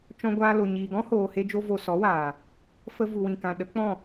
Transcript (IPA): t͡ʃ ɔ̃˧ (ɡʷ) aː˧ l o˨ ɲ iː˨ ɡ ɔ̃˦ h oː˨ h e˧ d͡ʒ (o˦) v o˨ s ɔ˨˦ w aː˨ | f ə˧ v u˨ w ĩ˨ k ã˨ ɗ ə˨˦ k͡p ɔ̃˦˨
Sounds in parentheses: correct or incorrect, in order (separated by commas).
correct, incorrect